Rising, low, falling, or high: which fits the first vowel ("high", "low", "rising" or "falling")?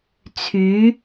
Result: rising